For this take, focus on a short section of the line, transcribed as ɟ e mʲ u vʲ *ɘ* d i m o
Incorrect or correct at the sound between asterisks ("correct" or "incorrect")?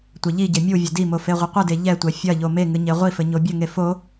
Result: correct